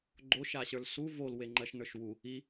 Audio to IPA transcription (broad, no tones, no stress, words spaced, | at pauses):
ɡ͡ǃo ʃaɕə˞lsu vol weŋ͡ǃɜʃnə˞ʃwu | i